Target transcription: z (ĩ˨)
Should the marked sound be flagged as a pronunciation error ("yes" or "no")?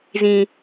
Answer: no